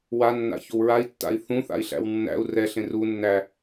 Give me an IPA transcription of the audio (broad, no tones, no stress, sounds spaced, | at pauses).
w a nː a̰ ç o w ɹ a i̯ tː a̰ i̯ θ ũ θ a̰ i̯ ɬ æ̰ w nː æ̰ u̯ r ɛ ɬ ẽ r u nː æ